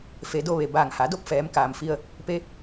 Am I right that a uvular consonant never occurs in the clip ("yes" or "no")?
yes